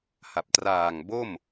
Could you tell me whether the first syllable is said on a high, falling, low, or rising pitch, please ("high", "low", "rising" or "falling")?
low